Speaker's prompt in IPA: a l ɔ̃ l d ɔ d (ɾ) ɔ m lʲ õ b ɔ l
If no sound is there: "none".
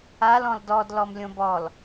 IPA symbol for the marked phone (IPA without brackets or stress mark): l